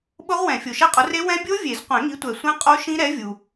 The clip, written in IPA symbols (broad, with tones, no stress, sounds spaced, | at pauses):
ɓ ʊ˦˥ ʁ w ɛ̃˨˩˦ fʲ o˨ ʃ ɛ˦˥ qʼ ʊ˨˥ r e˦˥ w ɛ̃˦˥ bʲ o˦˥ vʲ e˨˩˦ z qʷ ɛ̃˨˩˦ ŋ i˨˥ tʷ ɛ˨ sʷ ɛ̃˦˥ qʼ o˦˥ ʃ ĩ˦˥ ɾ ɛ˨˥ vʲ u˨